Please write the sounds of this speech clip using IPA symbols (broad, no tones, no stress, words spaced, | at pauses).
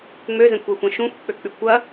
ŋ͡møzɛ̃kʷɛxʷɐ̃ ʃũxʷk͡pøk͡pykʷ ɐ